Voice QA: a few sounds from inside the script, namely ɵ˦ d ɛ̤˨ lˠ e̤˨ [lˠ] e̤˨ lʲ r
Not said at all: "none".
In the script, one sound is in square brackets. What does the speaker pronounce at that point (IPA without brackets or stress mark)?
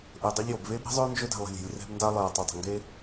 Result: lʲ